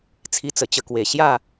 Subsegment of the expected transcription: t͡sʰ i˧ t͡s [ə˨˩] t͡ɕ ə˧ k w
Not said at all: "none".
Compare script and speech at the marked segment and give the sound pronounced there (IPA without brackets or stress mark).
ə˨˩